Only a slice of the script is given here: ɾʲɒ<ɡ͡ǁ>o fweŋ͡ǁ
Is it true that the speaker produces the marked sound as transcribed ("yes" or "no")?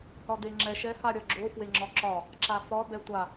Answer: yes